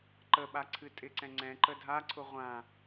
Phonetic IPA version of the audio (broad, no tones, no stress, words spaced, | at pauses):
ǃəɓaǀʰɨ tʼɪǀɛ̃ ŋ͡ǀɛ̃ ǃədʱaǀʰʊ ʁʷã